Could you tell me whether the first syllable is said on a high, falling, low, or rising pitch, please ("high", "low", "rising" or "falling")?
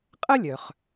high